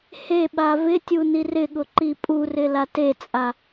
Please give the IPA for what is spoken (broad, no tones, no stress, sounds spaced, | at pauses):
h e ɓ a v ɪ tʲ u n i r ɪ ɠ ʊ ǃ i pʼ u r ɪ l a t e t͡sʼ a